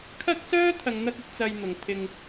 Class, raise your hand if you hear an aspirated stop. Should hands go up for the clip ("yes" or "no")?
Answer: yes